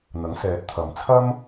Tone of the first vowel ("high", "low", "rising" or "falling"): rising